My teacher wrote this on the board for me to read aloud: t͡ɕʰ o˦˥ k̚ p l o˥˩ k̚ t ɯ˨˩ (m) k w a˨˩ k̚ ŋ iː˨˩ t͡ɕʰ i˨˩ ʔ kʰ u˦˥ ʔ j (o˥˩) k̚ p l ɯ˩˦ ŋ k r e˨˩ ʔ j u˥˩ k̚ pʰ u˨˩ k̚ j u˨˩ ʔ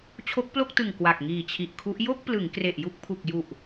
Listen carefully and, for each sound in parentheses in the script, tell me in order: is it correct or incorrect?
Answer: incorrect, correct

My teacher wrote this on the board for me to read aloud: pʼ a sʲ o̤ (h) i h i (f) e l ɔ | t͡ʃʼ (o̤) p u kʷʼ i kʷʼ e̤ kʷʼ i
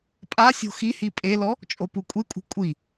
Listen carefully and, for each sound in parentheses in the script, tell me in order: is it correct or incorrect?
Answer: incorrect, incorrect, incorrect

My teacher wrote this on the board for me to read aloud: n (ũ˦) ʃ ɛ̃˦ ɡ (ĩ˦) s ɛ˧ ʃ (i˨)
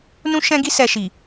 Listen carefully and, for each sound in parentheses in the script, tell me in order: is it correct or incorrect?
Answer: correct, incorrect, correct

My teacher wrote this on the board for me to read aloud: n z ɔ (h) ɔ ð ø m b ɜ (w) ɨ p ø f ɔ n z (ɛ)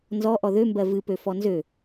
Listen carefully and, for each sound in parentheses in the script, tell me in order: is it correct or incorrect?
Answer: incorrect, incorrect, incorrect

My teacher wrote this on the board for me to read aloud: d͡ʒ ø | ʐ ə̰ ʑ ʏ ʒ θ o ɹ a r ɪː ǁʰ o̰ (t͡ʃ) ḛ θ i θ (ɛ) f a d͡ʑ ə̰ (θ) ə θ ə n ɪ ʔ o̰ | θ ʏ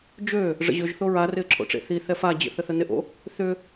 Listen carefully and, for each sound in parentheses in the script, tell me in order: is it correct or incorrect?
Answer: incorrect, correct, correct

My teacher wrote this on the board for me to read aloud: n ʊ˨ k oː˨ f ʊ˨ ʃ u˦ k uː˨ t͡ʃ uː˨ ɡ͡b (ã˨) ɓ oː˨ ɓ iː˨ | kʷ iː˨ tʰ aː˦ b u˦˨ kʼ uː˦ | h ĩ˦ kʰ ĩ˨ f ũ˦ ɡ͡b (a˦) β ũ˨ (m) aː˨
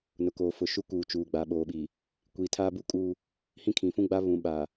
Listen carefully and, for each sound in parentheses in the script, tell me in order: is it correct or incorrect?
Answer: incorrect, correct, incorrect

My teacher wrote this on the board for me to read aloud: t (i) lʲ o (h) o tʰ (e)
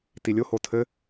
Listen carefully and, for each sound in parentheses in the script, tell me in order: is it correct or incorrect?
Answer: correct, correct, incorrect

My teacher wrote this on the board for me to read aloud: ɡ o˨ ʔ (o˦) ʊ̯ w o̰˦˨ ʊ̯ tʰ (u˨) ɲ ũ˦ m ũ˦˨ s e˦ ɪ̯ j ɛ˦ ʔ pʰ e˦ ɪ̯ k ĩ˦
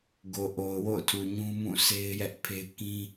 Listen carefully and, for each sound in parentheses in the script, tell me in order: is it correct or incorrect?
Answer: incorrect, correct

